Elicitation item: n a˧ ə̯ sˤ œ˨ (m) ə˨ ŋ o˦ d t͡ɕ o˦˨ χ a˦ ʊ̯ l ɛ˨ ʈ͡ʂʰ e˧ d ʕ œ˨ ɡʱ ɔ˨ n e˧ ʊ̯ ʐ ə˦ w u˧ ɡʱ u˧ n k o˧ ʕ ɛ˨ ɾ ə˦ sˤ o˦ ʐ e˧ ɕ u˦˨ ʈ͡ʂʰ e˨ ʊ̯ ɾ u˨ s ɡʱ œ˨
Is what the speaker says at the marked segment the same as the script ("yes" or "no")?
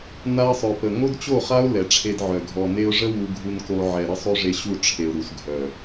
no